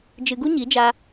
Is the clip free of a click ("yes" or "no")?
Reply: yes